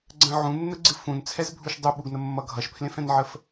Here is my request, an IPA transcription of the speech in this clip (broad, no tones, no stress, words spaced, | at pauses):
ɡ͡ǀə̃ ʕũnːəɡ͡ǀɨ fũnt͡sʰɛzbʱuʃ dˤuɓuɡnəmːʌ ɡʱʌʃpʰlẽfɛ̃nʕəf